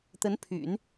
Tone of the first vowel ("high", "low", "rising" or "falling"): rising